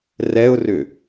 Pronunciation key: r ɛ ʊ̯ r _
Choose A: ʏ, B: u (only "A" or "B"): A